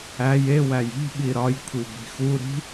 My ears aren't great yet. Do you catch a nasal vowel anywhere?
no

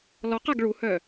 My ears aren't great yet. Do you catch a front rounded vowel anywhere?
yes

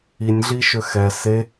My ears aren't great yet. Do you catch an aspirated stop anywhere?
no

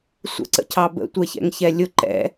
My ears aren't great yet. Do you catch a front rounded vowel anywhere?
no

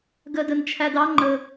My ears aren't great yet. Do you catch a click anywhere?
yes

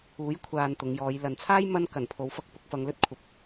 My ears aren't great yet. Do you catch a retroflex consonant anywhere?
no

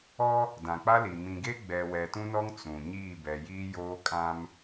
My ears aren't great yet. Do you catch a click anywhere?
no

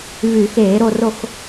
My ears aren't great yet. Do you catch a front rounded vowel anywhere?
yes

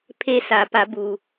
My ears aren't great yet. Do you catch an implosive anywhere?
no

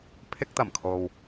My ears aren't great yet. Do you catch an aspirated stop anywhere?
yes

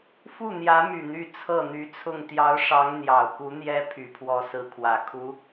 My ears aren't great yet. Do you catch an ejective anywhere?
no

